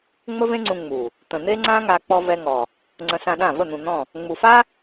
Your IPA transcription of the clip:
ŋ͡m ə˦ v ẽ˦ ŋ͡ǀ ũ˧ ŋ͡m u˨ | t̪ ə̃˨ n̪ e˦ ŋ͡ǀ ã˦ ŋ a˧ k͡p ɔ˧ v ɛ˧ ŋ ɔ˨ | ŋ͡ǀ ə̃˧ s ã˧ ɗ ã˦˨ v ə˦˨ n̪ ũ˨ n̪ ɔ̃˦˨ | ŋ͡m u˨ f a˦

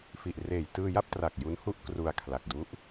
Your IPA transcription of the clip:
f i˨˩ ʔ r eː˨˩ j t ɯː˧ j a˥˩ p̚ t r a˨˩ k̚ j u˦˥ n h u˥˩ ʔ k r u˧ a̯ kʰ l a˨˩ k̚ d u˦˥ ʔ

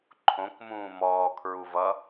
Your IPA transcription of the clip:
ǃʰ õ k m ũː m ɔː kʰ ɹ u v ʌ

